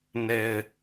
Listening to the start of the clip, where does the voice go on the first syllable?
low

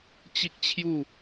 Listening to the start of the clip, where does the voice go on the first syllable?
high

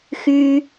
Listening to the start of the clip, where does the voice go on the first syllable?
high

